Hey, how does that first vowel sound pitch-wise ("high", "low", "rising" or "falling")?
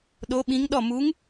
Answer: rising